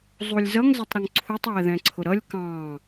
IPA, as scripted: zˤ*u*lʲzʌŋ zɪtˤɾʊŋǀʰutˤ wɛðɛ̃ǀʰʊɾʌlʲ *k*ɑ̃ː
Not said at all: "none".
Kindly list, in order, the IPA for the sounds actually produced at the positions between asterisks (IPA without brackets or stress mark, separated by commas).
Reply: u, k